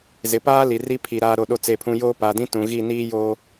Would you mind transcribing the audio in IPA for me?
z ɪ˨ p aː˦ l i˨ r i˦ pʰ i˨ ɾ aː˦ ɾ o˦˨ ɗ o˦ t͡s e˦˨ pʰ ũ˦ j oː˦ p a˨ d ĩ˦ t ũ˨ ɣ i˦˨ n iː˦ j oː˦

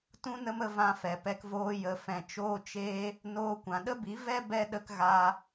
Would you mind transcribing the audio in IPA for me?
t ũ˦ n ə˦ m ə˧ v ã˧ f ɛ˨ p ɛ˧ k v oː˧ j ə˨ f ɛ̃˨ t͡ʃ oː˧ t͡ʃ eː˦ | n oː˧ kʷ ã˨ ɗ ə˦ b i˨˦ v ɛ˦ b ɛ˧ ɗ ə˧ k ɣ aː˧

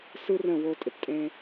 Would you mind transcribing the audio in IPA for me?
s ɯ˦ r ə̃˦˨ w o˧ tʼ ɪ˨ p tʼ ẽ˦

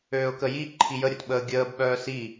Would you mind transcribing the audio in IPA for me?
øː ʊ̯ k ə j i ǃʰ i j ə ɾʲ ə t ɓ əː ɡʲ əː b ɓ œː s i

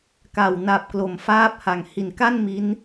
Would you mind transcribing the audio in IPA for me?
k a˨˩ w n a˨˩ p̚ k l o˨˩ m f aː˥˩ p̚ h a˨˩ ŋ h i˨˩ n k a˥˩ n m i˦˥ n

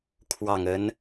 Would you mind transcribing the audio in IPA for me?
kʰ w ɑ˨˩ ŋ ə˧˥ n

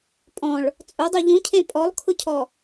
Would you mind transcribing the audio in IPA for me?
pʼ ɔ̃ ɭ | t͡sʼ ʊ dˤ u ʎ ũ cʰ ẽ pʼ ɔ lˠ kʰ ʊ cʰ ɔ

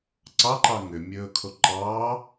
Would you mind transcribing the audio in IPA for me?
ǀ ɑ ǃ ɑ ŋ ʏ mʲ ɵː kʰ o ǃ ɑː

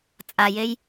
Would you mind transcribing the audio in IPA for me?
t͡sʼ a j e j

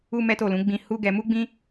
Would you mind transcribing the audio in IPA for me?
u˦ m ɛ˦ t o˦˨ l ũ˨˦ ɡ͡b ĩ˧ h u˦ ɡ ɛ˧ m u˦ ɡ͡b ĩ˦

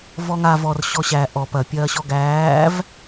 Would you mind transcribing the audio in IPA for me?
v ɔ ŋ a v ɔ r ɕ ɔ ɕ æ ʔ ɔ p ɐ pʲ ɐː ɕ ɔ ɡ æː v

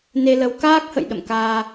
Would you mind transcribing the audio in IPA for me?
n e˧ l ə˨˦ w k aː˦˥ k̚ h ə̰˧˨ j ɗ ə̰˧˨ m k aː˧

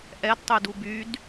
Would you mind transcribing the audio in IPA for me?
ʔ ɛ d tˤ y d u b y d

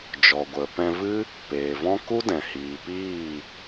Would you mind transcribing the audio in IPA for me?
d͡ʒ ɔ˨ ɡʷ ə˨ p ɛ̃˧ v ɨ˦ | p eː˨ v ɔ̃˦ k u˦ d ɛ̃˨ h iː˨ p iː˦˨

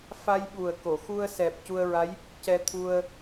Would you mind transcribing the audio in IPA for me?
f a˧ j ɓ u˨˩ ə̯ k o˨˩˨ x u˧ ə̯ s ɛ˨˩ p̚ c u˧ ə̯ ɹ a˧˥ j | c ɛ˧ t̪ʰ u˧ ə̯

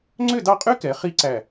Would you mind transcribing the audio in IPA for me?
ŋ͡ǀ ø˥˧ d ɑ˥˧ qʼ y˥ k ɛ˩˧ χ i˥ ǀ æ˧˩

